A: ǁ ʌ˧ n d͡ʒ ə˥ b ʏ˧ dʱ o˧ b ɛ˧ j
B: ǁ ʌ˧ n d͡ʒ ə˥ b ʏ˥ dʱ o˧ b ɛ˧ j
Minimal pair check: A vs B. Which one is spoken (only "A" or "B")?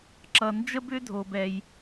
B